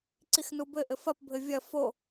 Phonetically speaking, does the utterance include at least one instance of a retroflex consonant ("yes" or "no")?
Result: no